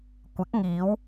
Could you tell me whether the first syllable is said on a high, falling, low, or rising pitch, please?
rising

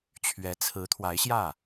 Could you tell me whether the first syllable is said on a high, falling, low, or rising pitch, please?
rising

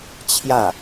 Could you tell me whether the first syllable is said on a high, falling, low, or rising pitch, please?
falling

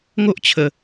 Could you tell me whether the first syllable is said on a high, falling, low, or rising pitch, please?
high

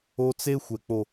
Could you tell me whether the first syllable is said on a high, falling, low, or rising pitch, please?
high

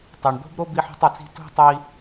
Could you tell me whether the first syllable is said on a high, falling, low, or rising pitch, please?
low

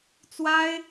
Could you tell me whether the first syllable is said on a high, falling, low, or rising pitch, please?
high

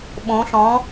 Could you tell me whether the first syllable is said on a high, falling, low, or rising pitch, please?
rising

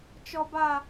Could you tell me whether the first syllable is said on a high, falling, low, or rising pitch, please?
high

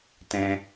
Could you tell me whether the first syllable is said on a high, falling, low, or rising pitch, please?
high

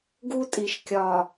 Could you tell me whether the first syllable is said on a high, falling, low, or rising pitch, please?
high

